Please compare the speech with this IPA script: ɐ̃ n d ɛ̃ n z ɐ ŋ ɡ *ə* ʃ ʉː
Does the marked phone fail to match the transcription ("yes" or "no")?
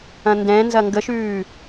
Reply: no